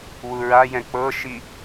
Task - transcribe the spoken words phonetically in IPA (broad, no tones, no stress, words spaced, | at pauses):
wuɹajɛ̃ k͡pɤʃi